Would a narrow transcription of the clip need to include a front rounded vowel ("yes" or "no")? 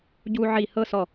no